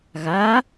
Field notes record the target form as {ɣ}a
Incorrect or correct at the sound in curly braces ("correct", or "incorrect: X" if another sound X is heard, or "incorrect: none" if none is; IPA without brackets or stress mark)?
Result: correct